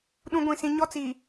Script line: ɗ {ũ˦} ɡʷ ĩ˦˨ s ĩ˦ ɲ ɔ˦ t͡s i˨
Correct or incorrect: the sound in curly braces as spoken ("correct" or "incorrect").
correct